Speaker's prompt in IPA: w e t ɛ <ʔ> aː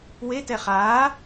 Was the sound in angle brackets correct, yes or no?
no